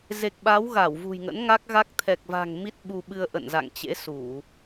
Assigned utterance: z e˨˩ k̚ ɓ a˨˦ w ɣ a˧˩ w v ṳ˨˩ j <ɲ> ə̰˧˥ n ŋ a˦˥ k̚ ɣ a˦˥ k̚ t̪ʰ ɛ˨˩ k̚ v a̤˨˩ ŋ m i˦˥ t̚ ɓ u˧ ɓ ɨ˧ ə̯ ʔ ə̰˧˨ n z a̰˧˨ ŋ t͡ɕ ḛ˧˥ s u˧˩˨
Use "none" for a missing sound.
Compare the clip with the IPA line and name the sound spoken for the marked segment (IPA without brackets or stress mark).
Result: ŋ